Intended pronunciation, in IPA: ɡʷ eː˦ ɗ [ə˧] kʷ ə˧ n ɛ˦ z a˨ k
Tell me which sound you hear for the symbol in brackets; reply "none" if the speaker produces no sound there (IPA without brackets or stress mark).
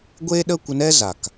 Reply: ə˦